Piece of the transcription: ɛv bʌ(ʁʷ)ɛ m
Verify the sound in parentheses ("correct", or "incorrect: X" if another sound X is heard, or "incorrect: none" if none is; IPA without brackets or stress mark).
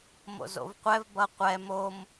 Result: incorrect: qʷ